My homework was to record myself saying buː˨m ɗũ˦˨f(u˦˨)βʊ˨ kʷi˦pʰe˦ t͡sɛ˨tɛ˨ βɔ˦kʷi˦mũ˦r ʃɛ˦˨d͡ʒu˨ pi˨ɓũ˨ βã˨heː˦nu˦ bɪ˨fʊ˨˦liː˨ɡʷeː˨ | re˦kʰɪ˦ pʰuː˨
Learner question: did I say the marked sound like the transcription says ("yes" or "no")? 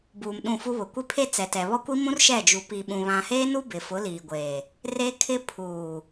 no